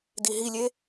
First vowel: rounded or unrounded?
unrounded